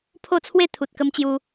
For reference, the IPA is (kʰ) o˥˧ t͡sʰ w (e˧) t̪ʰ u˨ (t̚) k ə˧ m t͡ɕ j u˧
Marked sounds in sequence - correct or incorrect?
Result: incorrect: pʰ, incorrect: e˥˧, correct

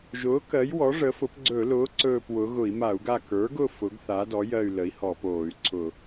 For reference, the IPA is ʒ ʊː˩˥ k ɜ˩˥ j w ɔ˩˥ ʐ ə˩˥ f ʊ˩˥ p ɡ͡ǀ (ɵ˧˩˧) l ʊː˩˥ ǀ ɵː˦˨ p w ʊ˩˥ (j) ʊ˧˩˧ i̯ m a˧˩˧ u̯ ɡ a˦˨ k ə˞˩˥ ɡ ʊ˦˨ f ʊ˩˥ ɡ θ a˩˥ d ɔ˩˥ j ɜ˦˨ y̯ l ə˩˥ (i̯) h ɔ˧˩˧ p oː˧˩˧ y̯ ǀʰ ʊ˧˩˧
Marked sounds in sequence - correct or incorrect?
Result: correct, incorrect: ɣ, correct

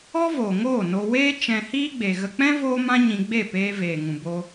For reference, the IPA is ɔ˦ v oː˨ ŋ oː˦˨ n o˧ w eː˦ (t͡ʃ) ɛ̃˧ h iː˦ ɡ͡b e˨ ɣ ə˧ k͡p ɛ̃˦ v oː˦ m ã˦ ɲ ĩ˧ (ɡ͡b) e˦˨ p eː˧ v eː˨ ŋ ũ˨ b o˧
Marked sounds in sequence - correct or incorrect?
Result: correct, correct

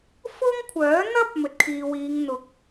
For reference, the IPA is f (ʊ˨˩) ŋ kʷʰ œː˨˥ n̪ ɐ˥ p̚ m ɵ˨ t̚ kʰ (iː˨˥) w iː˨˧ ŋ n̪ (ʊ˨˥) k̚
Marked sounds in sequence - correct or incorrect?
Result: incorrect: ʊ˥, incorrect: iː˨, correct

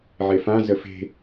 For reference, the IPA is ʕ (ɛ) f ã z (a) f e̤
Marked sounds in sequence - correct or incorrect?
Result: incorrect: e, incorrect: ə

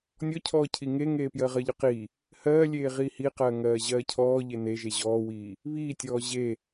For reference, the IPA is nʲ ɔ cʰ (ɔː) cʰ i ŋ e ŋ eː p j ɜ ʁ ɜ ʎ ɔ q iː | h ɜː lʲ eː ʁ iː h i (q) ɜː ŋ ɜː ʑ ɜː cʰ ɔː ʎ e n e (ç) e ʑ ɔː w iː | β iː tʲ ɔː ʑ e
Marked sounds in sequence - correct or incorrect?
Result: correct, correct, incorrect: ʒ

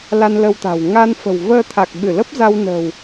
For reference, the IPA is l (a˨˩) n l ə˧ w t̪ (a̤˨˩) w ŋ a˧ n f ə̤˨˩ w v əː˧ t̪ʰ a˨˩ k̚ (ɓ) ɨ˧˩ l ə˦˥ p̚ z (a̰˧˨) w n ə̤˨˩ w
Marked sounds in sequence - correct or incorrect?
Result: incorrect: a˧, correct, correct, incorrect: a˧

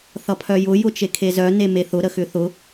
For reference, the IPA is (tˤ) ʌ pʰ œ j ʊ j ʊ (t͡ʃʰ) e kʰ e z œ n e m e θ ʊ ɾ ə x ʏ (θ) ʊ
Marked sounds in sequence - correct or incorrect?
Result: incorrect: θ, incorrect: t͡ʃ, correct

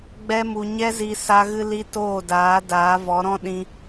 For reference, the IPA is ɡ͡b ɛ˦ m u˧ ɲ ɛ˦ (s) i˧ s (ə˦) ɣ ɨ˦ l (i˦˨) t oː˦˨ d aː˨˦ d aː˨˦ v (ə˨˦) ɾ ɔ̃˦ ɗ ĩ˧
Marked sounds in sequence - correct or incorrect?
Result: incorrect: z, incorrect: a˦, incorrect: i˦, incorrect: ɔ˨˦

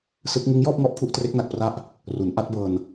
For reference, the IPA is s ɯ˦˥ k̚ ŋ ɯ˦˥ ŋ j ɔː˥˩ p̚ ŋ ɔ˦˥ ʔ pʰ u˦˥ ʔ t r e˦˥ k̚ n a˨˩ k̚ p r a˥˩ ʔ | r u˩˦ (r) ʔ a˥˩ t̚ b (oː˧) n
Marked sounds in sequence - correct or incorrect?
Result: incorrect: n, incorrect: ɤː˧

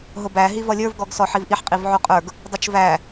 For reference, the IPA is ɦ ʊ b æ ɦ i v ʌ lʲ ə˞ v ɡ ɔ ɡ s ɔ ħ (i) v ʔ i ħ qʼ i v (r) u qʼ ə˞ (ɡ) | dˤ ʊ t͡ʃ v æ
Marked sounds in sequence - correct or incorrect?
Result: correct, incorrect: ʕ, correct

